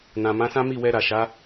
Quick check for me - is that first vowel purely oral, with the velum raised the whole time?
no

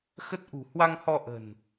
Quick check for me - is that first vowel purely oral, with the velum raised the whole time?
yes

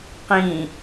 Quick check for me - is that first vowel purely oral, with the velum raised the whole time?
no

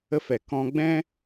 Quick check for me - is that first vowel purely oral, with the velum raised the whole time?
yes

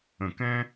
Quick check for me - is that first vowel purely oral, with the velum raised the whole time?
no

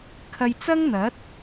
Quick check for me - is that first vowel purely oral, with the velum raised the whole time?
yes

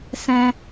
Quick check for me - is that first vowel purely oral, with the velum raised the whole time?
no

